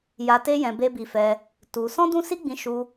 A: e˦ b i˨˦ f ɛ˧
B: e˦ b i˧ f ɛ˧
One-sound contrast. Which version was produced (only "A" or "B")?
B